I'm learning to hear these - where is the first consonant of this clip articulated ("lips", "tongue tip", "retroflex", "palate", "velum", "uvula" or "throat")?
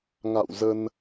velum